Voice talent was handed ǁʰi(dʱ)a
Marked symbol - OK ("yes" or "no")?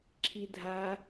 yes